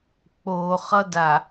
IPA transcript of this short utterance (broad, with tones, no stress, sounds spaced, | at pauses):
k͡p oː˨ χ ʌ˦ d a˨